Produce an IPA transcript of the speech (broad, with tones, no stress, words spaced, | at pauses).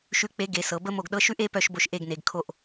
ʃʉ˨˦k͡pe˨˦ ɡe˨˦sɤ˨˦ bə˦˥mo˦˨ɡɗɤ˦˥ ʃʉ˦˥ʔe˦˥ pœ˦˨ʃbo˦˨ʃ ʔe˦˨ɡne˨˦ɡ kʰo˦˨ʔ